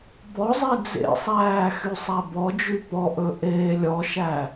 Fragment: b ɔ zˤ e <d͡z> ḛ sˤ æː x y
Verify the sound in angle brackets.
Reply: correct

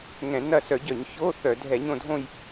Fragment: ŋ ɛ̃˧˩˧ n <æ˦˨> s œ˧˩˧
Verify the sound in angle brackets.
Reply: incorrect: ɐ˦˨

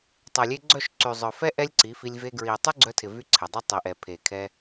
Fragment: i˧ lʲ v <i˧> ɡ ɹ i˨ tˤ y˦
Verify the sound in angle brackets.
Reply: incorrect: e˧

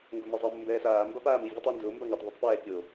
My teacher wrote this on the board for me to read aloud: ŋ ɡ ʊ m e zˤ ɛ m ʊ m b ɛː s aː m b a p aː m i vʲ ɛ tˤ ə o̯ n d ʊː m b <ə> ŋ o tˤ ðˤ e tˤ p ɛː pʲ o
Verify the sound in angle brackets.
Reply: incorrect: a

